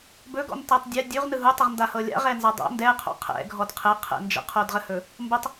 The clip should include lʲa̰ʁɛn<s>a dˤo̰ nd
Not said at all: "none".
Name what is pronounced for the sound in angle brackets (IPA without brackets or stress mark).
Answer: z